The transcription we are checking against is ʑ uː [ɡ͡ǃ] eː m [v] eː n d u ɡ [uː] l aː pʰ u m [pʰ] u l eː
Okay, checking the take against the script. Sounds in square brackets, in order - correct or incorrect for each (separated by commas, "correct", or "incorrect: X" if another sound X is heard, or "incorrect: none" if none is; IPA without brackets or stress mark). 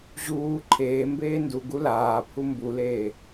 incorrect: ǃʰ, incorrect: b, incorrect: u, incorrect: b